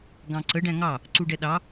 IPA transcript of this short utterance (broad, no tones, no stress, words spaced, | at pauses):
ɡɑ̃ǀə ɖæ̃ŋɑ | ǀuɖɛɗɑ